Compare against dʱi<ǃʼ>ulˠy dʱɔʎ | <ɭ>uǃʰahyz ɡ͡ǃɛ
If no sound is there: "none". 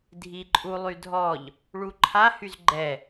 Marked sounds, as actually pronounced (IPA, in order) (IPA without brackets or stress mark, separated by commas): ǃʼ, ɭ